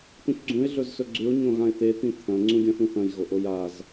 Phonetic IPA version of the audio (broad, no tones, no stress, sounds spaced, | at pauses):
t̪ ũ ç ɡ͡ǀ ũ ɪ̯ ɮ ɵ z s ɵ ɡ͡ǀ ʉ ʊ̯ ɲ õ ɣ ã ɪ̯ t̪ e t̪ ĩ t̪ʰ ɐ̃ ŋ͡ǀ ũ ɡʲ ɐ̃ θ ũ θ ɐ̃ j ɣ o ʔ o j a z